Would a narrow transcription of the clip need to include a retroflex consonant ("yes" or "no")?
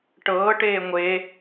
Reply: yes